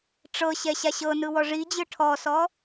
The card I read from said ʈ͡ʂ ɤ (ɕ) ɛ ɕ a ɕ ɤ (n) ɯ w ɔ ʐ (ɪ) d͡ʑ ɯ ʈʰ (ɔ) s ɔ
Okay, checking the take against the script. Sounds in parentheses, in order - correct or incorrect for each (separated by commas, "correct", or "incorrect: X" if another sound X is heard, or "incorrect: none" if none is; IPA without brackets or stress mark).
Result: correct, correct, incorrect: i, correct